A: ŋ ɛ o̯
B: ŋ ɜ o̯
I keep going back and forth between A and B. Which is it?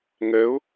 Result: B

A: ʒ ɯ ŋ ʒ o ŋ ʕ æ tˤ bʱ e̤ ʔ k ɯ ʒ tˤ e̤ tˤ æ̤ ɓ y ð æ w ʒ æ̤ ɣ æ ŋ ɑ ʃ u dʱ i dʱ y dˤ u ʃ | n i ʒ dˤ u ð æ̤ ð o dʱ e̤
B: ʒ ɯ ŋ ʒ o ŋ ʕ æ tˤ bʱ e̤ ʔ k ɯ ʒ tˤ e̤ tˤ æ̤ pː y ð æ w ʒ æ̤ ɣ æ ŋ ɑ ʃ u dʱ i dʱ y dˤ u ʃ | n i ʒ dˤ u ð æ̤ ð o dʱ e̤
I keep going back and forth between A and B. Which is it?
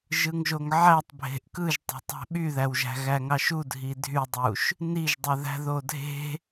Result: A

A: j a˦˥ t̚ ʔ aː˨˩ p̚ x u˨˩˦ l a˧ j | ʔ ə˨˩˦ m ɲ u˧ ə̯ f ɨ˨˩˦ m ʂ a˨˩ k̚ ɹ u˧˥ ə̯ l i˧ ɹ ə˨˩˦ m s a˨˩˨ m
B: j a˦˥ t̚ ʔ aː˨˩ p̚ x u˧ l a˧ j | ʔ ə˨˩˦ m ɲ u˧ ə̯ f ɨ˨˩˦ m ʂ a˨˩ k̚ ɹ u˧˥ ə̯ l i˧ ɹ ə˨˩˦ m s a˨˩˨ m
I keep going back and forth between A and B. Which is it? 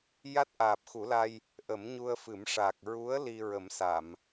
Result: A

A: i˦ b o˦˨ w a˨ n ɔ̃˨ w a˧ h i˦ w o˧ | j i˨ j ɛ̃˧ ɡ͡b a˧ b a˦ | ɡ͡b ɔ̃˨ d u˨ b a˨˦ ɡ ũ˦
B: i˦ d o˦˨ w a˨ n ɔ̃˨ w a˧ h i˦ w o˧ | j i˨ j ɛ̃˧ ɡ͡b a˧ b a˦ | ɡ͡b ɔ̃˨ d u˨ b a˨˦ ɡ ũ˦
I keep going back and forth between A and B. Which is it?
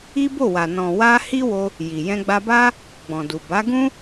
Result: A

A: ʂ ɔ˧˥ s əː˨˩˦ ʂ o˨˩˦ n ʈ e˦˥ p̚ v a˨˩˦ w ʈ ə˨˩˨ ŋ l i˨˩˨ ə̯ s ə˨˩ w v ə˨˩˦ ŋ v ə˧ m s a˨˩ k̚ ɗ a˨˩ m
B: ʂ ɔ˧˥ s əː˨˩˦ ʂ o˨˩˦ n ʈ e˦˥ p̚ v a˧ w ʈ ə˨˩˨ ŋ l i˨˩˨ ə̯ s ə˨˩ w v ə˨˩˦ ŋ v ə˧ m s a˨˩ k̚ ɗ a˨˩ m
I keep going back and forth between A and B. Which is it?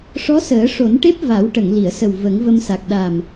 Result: A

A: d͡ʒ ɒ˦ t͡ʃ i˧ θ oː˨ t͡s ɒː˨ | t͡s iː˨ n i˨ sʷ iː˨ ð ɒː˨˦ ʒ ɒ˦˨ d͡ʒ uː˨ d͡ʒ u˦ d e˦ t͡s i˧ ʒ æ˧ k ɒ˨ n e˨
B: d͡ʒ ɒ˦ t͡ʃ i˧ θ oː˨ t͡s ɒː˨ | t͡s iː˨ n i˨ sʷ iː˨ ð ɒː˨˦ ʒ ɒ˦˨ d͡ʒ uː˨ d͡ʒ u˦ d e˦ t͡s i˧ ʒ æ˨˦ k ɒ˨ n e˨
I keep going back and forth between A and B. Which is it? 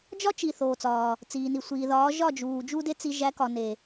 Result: B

